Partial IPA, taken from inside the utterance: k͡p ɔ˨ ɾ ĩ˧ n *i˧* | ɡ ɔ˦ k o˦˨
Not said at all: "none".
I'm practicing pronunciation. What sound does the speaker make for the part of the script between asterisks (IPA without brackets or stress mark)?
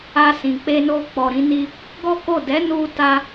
i˧